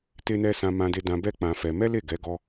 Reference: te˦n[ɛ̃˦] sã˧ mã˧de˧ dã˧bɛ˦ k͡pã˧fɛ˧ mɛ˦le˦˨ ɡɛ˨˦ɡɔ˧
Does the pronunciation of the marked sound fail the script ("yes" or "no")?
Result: yes